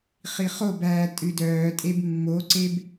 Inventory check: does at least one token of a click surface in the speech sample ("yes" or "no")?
yes